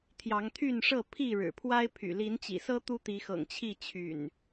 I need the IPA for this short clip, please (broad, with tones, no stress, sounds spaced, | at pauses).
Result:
t̪ʰ j ɑ˨˦ ŋ t̪ʰ y˥˨ n ʂ ɤ˥˨ pʰ i˥˨ ɻ ɻ̩˨˩ pʰ w a˦ ɪ̯ pʰ y̰˨˩ l i˨˦ n t͡ɕ ḭ˨˩ s ɤ˦ t̪ u˦ t̪ i˨˦ x ɤ̰˨˩ ŋ t͡ɕʰ i˥˨ t͡ɕʰ y̰˨˩ n